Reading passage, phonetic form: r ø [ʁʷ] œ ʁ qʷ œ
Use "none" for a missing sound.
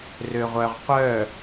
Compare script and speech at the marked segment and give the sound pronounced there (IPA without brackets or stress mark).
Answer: ʁʷ